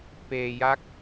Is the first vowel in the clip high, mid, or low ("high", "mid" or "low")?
mid